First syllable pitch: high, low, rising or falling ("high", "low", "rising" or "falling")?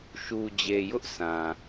low